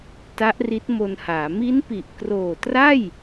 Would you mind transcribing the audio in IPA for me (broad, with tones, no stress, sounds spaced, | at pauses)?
t a˦˥ ʔ r i˦˥ t̚ m o˧ n h aː˩˦ m i˦˥ n p i˨˩ ʔ k r oː˨˩ t r a˥˩ j